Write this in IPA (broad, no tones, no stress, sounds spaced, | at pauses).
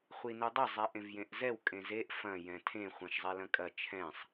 χʷ i n u dˤ ɐ zˤ ɛ ʔ ẽ v j ẽ ʔ z ɛ w kʼ ẽ z e ʔ f ɐ̃ j ɛ̃ tʰ ẽ χʷ ɐ̃ ʃ zˤ ɛ l ɐ̃ kʼ ɐ t͡ʃʰ ɛ̃ sˤ